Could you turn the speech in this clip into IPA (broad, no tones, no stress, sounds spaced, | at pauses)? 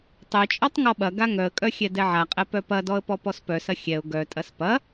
tˤ œ t͡ʃʼ ɔ tˤ ŋ ɔ ɓ ɐ ɡ a ŋ œ ə̯ kʼ œ xʲ ɛ d ɛ ʕ a qʼ ɛ p œ p ɐ d ɔ ə̯ p ɔ p ɔ s p œ s ɐ xʲ ɛ ʊ̯ ɡ œ tʼ ɐ s p ɐ